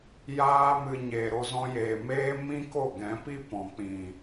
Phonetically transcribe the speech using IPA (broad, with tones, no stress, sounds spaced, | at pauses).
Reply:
j aː˦ m ɨ˧ ɲ eː˨ ɾ o˧ z ɔ̃˧ j eː˨ m eː˦ m ĩ˦ k o˦˨ ɡ ɛ̃˨˦ p i˦ p ɔ̃˨ k͡p ĩ˨